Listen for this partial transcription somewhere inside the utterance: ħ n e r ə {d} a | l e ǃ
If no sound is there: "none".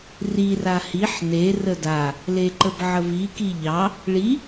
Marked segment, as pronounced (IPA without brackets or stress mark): d